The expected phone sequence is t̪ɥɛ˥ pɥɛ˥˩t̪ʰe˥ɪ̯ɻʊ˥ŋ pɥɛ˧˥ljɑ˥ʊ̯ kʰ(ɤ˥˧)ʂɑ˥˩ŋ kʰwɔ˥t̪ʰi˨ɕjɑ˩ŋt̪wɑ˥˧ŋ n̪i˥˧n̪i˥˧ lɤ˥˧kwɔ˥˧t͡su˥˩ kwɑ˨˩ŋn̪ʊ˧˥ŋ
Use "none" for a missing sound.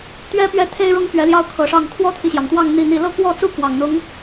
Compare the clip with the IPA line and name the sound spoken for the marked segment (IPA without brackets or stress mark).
ɤ˨˩